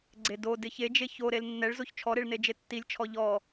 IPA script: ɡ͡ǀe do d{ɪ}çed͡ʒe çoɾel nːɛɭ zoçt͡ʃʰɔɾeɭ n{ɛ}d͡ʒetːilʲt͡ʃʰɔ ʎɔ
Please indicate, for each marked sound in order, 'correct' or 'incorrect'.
correct, incorrect: e

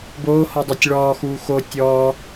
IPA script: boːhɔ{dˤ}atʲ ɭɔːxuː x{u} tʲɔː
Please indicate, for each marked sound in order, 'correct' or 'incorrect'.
correct, incorrect: o

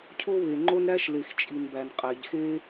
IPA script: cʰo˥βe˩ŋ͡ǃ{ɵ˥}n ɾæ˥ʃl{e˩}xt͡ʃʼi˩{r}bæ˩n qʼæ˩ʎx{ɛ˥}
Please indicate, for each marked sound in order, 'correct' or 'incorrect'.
incorrect: o˥, correct, incorrect: n, incorrect: e˥

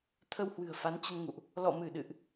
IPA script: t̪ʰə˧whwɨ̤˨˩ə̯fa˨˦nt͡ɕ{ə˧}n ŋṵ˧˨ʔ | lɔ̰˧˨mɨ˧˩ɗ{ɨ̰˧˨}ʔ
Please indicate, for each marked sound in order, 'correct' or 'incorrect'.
correct, correct

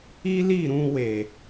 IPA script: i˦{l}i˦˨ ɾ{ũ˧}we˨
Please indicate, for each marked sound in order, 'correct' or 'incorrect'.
correct, correct

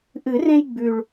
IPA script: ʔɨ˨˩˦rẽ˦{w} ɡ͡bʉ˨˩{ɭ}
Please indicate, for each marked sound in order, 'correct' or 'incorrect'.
incorrect: j, correct

